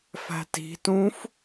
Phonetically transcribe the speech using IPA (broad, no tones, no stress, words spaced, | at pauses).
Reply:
fæ̤ti̤tũf